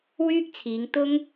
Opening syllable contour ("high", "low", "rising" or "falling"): high